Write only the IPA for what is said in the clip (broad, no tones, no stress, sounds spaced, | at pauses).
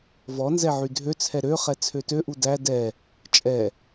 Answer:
v ɔ n z ɛ ʕ y dʱ ø t͡sʰ ɛ ɾ ø χ ɛ t͡sʰ ø t ø ʔ u d æ d ɛ | t͡ʃʼ ɛ